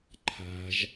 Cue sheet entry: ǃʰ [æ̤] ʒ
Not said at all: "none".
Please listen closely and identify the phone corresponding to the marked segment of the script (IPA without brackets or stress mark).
a̤